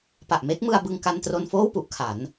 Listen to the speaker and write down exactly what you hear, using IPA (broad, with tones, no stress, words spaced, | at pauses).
pa˨˩ʔme˦˥k̚mɯ˧a̯bɯ˧ŋ ka˧ntro˧nfoː˥˩wpu˦˥ʔ kʰa˩˦n